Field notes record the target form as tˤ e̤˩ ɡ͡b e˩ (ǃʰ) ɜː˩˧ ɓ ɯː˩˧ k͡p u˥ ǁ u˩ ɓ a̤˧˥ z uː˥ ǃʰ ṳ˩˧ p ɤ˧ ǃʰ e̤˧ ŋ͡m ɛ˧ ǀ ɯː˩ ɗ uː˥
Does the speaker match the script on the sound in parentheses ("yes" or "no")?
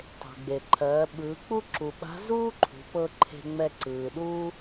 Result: yes